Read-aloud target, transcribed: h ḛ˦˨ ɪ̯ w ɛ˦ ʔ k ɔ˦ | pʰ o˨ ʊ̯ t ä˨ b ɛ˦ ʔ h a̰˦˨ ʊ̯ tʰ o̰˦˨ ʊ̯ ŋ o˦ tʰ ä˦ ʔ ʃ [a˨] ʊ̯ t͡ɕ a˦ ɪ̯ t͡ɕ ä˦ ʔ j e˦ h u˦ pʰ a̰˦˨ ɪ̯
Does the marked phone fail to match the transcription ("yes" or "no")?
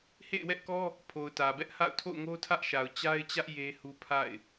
no